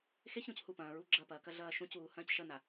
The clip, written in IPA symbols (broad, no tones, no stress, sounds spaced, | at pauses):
x e ç ɾ ũ c h u p ɐ̃ː ɹ u ɡ͡ǁ ɐ p ɐː k ɐ ɮ ɐː ʃ ũ c uː h ɐ̃ː c ʃ ɐ n a